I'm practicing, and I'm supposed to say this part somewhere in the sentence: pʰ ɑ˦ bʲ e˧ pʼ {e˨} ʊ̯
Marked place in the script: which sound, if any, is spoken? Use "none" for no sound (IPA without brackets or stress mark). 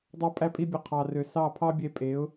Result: e˨˦